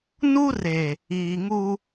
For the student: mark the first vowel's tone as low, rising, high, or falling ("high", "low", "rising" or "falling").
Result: high